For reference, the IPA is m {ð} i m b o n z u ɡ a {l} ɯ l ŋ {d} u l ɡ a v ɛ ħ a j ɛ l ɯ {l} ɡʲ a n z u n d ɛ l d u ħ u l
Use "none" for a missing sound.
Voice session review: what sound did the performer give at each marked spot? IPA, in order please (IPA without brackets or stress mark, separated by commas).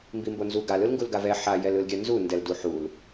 b, l, ɡ, l